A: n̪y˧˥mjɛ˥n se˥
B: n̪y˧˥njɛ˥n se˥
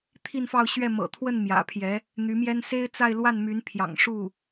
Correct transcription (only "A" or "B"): A